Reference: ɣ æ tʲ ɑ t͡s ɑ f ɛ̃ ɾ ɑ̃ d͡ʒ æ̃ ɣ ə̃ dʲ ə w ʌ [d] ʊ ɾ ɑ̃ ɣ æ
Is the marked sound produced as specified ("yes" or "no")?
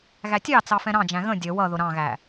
no